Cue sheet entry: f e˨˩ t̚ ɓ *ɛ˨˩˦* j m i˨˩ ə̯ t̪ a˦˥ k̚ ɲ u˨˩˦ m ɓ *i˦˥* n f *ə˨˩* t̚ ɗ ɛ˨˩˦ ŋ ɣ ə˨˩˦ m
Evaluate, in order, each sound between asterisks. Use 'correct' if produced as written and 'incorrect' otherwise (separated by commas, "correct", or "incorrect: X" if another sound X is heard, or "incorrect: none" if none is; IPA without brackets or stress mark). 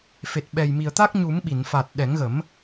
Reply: incorrect: ɛ˨˩, incorrect: i˨˩˨, incorrect: a˨˩